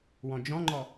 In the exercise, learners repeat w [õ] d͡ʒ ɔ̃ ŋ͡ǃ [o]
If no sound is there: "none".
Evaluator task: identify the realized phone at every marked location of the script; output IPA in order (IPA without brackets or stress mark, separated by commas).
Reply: ɔ̃, ɔ